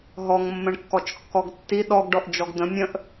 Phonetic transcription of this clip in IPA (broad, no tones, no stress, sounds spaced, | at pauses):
ɦ ɔ ŋ mː ə̃ ɳ kː ɔ t͡ʃ kː ɔ ɡ tː i ɗ ɔ ɡ ɖ ɔ ʔ d͡ʒ ɔ ɡ d̪ ə̃ mʲ ə̃ ʔ